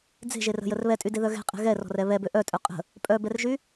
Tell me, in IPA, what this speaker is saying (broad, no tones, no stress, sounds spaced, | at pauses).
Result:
d͡z e̤ ʒ e r ə̤ j ə r β ɛ tʼ y d e ð œ ɣ ɛ̤ qʼ ɛ̤ ɣ ɛ r ɔ̤ r ɛ β ɛ b ø ʔ œ tʼ œ qʼ ə̤ | pʼ œ b ɛ r ʒ y